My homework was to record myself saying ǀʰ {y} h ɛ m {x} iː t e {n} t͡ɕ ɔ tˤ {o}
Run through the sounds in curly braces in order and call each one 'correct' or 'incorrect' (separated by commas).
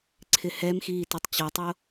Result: incorrect, correct, incorrect, correct